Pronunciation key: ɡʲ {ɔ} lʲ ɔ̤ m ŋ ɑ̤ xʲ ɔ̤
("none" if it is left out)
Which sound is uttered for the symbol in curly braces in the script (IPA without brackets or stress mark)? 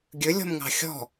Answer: ɵ